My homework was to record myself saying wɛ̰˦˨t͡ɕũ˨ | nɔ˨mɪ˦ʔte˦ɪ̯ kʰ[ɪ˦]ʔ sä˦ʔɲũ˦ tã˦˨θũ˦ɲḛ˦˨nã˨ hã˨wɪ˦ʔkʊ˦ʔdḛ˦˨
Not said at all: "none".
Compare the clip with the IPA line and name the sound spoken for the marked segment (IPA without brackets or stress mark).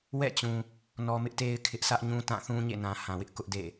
ɪ˦